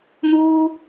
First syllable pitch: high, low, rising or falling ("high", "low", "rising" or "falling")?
high